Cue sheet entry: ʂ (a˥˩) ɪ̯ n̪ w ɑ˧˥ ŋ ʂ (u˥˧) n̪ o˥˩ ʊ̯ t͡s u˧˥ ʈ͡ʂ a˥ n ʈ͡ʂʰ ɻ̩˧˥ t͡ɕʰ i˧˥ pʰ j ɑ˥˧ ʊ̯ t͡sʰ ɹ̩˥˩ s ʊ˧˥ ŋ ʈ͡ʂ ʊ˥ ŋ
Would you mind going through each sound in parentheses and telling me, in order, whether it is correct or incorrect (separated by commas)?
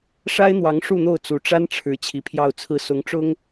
incorrect, correct